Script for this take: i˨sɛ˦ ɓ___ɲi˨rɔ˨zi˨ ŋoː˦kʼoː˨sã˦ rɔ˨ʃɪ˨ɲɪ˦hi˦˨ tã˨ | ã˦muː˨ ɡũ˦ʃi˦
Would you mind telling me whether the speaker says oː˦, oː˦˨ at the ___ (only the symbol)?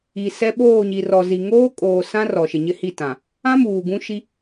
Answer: oː˦˨